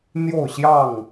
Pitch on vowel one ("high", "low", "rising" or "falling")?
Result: falling